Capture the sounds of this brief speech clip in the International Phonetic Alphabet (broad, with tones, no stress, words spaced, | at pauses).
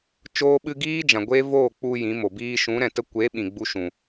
t͡ʃoː˦ɓɨ˦ ɡiː˦ d͡ʒã˨ ɡʷe˦voː˦˨ k͡pu˧ jĩ˨˦mo˨ biː˧ʃũ˨˦ɾɛ̃˨ tə˦ kʷe˨˦ ɓĩ˨ɡ͡bu˧ʃũ˨